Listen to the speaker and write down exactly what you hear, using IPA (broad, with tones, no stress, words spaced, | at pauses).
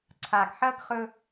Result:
ǀʰa˨ɡħɐ˦ɡ χɵ˦